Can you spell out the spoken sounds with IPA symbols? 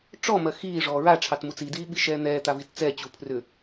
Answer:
ʈ͡ʂ ɔ m ɜ x iː ʐ ɔː ɹ a ʈ͡ʂʰ ɑ t m u t͡s i d iː ɓ i ʃ ɛː n̪ ɛː t̪ a v i t t͡s ɛ t͡ɕ u pʰ r ʏ

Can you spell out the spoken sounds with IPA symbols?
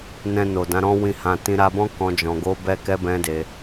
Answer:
n ɛ̃˧ n o˨ d ã˨˦ ɾ ɔ̃˦ w ĩ˦˨ h ã˧ t ĩ˧ ɾ a˧ b ɔ̃˦ k ɔ̃˧ d͡ʒ ɔ̃˧ ɡ o˦ b ɛ˦ k ɛ˦ b ɛ̃˦ d e˧

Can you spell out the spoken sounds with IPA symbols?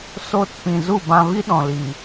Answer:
s o˦˨ t p ĩ˧ z u˦˨ b ã˧ v i˦ ɗ ɔ̃˧ l i˧

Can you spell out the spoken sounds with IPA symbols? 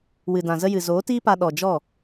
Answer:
w ɨ˨ d ã˨ z ə˦ j ɨ˨ z oː˨˦ t iː˦ p a˧ ɗ ɔ˨ d͡ʒ ɔ˦˨

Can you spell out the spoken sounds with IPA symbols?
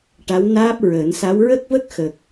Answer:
ʈ a˧˥ w n aː˦˥ p̚ ɹ əː˨˩˦ n s a˧˥ w ɹ ə˦˥ k̚ v ə˦˥ k̚ x ə˨˩ k̚

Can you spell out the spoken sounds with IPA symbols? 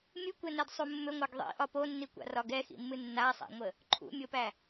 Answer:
mʲ ɨ kʷ ɛ n ɛ d sˤ u mː ʏ ŋʷ a ɡ ðˤ ḭ ʔ ɒ p o nː i kʷ a̰ r ɒ ɡ ɛ x ḭ mː ɨ nː a sˤ a̰ ŋʷ ə | ǃʰ ṵ mʲ o p æ

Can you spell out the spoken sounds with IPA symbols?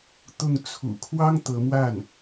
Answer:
t̪ ʊ˥˩ ŋ t͡sʰ ṵ˨˩ kʰ w ɑ˥ ŋ t̪ ɤ˧˥ m w a˥˩ n

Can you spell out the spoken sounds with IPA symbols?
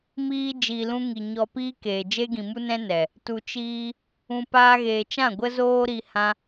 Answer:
m iː˧ d͡ʒ iː˨ l ũ˧ ŋ i˨ ɲ ɔ˧ p iː˦ k eː˨ d͡ʒ e˦ ɡ ĩ˨ m u˦ n ɛ̃˦ n ɛ˨ | t u˨ t͡ʃ iː˧ | ũ˨ p aː˧ ɣ eː˨ t͡ʃ ã˦˨ ɡʷ ə˦ z oː˦ ɾ i˧ h ã˦

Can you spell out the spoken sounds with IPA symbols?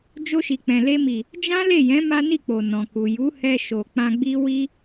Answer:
d͡ʒ o˧ ʃ i˨ k͡p ɛ̃˨ l e˧ m i˨ | d͡ʒ ã˦ l e˦˨ j ɛ̃˨˦ m a˦ n i˦˨ k͡p o˨ n ɔ̃˨ k u˨ j u˨˦ h ɛ˧ ʃ o˨ k͡p ã˧ ɡ͡b i˦ w i˦

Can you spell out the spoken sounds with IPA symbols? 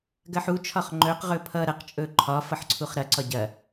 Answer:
ɡ ɐ ħ u t͡ʃʰ ɒ χ ŋ͡ǃ ɵ q ʁ ɵ pʰ ʌ ɾ ɐ q t͡ʃʼ ɵ ǃʰ ɒ f ʌ ħ ǀʰ u χ ɾ ɐ ǀ ɒ ɟ ɐ

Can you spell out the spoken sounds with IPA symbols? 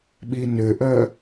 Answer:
ɓ i n ʏ ʔ œ

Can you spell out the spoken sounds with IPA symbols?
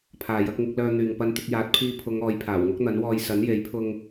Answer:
pʰ aː˨ j ɐ˨˥ k̚ ŋ ɪ˨˥ k̚ l œː˧ n̪ yː˨ ŋ p ɐ˧ n t̪ ɪ˧ k̚ j aː˨˥ t̚ pʰ iː˧ pʰ ʊ˨˧ ŋ ɔː˨˧ j pʰ aː˨˩ w ŋ ʊ˥ k̚ n̪ ɐ˨˥ n w ɔː˧ j s ɐ˨˥ n j e˨˥ j pʰ ʊ˧ ŋ

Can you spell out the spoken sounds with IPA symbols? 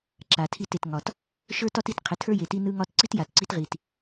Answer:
ǁ a˨ tʰ i˦˨ t e˨ t ŋ ɒ˨ t | ʃ ə˞˦ t ɒ˦ t i˦˨ t qʰ ɪ˨˦ tʰ ə˞˦ j e˨ t i˦ n ɯ˦ ŋ ɒ˦ t ǀ i˦ t j a˨ t ǀ i˦ t ʁ i˨ t

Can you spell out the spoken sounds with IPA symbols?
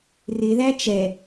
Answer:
r ɪ ð æ t͡ʃ ɛ

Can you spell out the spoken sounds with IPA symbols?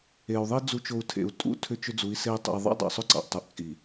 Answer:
e˨ u̯ ðˤ i˦ d͡z u˨ t͡ʃ o˨ u̯ tʰ ḛ˨ u̯ tʼ ṵ˦ tʰ ʏ˦ t͡ʃ ʏ˦ d͡z u˨˦ i̯ s e˦ i̯ tˤ ṵ˨ i̯ ðˤ ɑ̰˦ dˤ ɑ̰˨ sˤ ʏ˦ ǀ ɑ̰˨ ʔ tˤ u˨ ʔ t͡sʼ i˨

